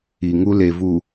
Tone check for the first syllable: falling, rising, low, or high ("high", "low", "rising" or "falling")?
low